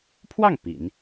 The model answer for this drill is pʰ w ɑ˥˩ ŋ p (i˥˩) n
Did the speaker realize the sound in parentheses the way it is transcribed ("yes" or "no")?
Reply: no